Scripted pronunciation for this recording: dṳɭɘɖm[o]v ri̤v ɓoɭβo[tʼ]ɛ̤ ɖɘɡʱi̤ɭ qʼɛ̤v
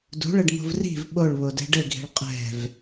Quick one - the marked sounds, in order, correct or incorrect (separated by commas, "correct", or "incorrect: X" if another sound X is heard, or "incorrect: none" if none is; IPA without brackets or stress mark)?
incorrect: o̤, incorrect: d